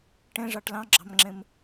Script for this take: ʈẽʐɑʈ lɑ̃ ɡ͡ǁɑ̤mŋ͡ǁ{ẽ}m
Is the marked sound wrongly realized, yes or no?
no